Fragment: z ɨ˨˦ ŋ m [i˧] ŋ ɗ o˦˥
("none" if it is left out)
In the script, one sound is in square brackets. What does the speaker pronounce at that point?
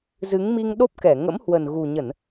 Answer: i˧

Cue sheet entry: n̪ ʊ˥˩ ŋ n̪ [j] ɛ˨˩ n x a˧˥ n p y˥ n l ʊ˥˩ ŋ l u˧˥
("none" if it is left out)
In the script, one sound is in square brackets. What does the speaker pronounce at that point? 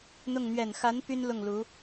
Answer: ɥ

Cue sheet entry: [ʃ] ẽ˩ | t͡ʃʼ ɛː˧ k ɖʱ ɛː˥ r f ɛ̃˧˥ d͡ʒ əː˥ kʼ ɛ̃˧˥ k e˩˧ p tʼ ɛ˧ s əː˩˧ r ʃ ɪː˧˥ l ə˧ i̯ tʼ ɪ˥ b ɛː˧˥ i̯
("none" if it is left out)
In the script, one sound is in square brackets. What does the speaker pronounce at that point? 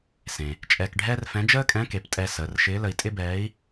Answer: s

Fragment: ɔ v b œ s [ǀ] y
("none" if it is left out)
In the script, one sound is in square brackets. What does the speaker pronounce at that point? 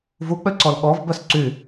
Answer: ǀ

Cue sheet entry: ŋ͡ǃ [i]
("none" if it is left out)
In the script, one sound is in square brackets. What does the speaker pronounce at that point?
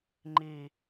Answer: i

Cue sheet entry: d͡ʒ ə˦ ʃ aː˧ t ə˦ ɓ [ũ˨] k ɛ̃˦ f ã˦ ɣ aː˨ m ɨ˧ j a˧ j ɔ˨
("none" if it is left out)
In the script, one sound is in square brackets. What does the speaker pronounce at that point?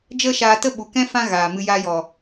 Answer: u˨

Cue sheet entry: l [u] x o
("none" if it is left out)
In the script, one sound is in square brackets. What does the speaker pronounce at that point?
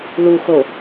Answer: u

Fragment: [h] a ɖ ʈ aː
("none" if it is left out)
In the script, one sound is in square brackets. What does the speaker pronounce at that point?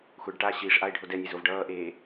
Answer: xʷ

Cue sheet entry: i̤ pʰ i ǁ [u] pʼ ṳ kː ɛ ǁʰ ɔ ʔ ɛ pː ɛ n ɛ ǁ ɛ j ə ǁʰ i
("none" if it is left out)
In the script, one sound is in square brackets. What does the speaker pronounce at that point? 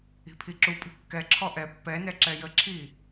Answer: u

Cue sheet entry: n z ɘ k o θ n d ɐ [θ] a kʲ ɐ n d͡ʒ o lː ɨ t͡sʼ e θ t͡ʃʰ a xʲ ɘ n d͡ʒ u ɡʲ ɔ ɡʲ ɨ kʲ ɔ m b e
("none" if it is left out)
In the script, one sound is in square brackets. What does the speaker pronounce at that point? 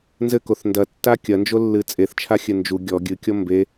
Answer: tː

